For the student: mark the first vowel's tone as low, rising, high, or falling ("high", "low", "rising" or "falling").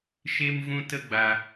high